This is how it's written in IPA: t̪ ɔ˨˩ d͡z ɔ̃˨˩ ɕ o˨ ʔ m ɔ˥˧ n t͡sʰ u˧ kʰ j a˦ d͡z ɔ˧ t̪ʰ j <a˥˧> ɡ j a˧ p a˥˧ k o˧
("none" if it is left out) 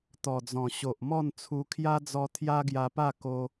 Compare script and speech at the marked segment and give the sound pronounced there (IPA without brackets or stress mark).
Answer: a˦